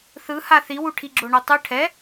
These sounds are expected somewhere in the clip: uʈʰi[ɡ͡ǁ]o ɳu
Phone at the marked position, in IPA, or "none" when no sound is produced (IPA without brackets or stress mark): ɡ͡ǁ